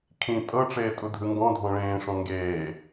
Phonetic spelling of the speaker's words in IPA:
kʰ ĩ tʼ ɤ ʈ͡ʂ eː tʼ u dʱ ɯ ŋ ɡ ɔ̃ dʱ ɔ̃ ɭ ẽː ʂ ɔ̃ ŋ ɡ eː

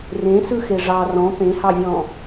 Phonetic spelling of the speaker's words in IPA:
r ẽ s ɯ x e ʐ ɑ r ɔ̃ p ẽ h ɑ vʲ ɔ̃

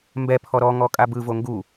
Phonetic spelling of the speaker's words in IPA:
m b ɛ pʰ ɔ ɾ ɔ ŋ ɔ kʼ a b ɯ v o ŋ ɡ u

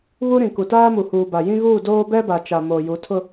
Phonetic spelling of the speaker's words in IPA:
β u˦ ɾ ĩ˨ k u˨ t aː˦ m u˨ h uː˨ b a˨ j ĩ˦ ɣ uː˦˨ d oː˦ b ɛ˦ b a˨ t͡ʃ a˨ m oː˨ j u˨˦ tʰ ʊ˦

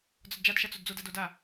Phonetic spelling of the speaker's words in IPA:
d͡z ɒ d d͡ʒ a d ʃ a t͡s o d d͡z o d a d o d a

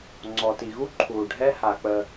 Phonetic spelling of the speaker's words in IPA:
ŋ͡ǀ ɔ˩ t i˩ ɣ u˥ ǃʰ uː˩ ɖʱ ɛ˦ h a˩ k͡p ə˨

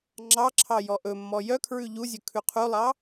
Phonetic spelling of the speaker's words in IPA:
ŋ͡ǁ ɑ ǁʰ ɑ j ɔ ʔ ɵ mː ɔ j œ kʰ ɹ ʉ ʎ u zʲ ɵ kʰ ʉ qʰ u lˠ ɑ

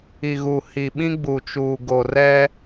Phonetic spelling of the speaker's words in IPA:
i˨ ɣ u˨ h i˨ ɓ ĩ˦ ɡ͡b u˨ t͡ʃ uː˨ ɡ o˨ r ɛ˦

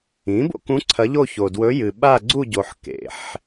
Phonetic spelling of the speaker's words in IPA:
ĩ˩˥ b o̰˥˧ k ũ˧˥ ǀʰ ɐ˧˥ ʎ o˥˧ ç o˨ d w ɵ˧˥ j ɨ˨ ɓ a˥˧ ɡ͡ǀ u˥˧ ɟ o˨ ħ k ḛ˨ ħ

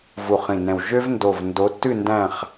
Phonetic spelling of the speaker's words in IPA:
v u˨˩ χ ĩ˨˩ n ɛ̃˨˩ w ʒ ø˦ v n d o˨˩ v n d o˨˦ tː ʉ˦˨ n d æ̃˦˨ χ

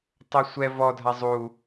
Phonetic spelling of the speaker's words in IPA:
tˤ ʊ sʷ ɛ v ɔ dʱ a zˤ u

